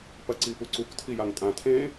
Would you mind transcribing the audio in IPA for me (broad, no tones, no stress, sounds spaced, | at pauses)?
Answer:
p ɐ ǀ i p u ǀ u k tʰ i j a ŋ tʼ ã tʰ ẽː